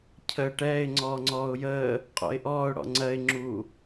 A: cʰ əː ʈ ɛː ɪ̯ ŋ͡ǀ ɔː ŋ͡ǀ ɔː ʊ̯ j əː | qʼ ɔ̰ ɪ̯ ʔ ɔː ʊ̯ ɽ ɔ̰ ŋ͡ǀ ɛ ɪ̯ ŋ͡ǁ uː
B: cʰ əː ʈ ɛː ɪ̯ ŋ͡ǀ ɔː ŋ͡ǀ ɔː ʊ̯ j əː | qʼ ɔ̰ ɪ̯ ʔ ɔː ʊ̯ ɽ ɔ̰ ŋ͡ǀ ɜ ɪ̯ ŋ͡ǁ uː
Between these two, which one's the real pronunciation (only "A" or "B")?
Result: B